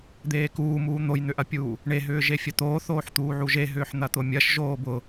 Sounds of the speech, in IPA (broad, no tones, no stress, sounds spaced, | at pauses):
d̪ eː k uː m uː n̪ o j n̪ ʏ ʔ ɐ pʲ uː | ɳ e ɦ ʏː ʒ e fʲ ɐ t̪ oː θ oː ħ t̪ uː ʕ u ʒ e ɦ ʏː ħ n̪ ɐ t̪ ʊ mʲ ɐ ʃ ʒ oː b ʊ